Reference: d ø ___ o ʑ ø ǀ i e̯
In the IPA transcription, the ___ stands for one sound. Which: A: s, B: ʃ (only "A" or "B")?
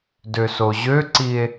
A